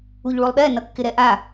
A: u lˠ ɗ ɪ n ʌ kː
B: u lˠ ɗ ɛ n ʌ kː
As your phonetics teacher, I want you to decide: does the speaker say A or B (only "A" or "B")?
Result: B